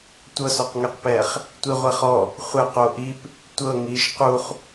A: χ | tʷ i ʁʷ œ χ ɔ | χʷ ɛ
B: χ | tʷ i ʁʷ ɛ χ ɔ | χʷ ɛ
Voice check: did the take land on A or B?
B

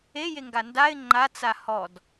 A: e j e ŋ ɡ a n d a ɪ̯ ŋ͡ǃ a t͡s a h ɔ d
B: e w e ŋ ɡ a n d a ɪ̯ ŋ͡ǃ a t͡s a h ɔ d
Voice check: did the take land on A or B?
A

